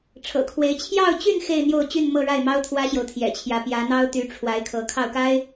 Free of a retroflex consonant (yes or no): no